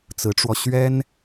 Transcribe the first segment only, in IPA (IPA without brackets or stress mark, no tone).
t͡s